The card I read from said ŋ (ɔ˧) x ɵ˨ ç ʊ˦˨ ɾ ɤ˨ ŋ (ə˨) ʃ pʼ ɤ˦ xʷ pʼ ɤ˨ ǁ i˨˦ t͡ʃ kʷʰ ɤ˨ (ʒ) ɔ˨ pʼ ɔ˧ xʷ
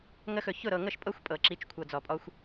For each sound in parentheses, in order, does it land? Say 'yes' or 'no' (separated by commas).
no, no, no